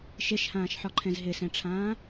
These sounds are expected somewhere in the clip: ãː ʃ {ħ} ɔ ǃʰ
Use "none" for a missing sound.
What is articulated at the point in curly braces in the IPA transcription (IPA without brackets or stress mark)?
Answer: ħ